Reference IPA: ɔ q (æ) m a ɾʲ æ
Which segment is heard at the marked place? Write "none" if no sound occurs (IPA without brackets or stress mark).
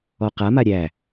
a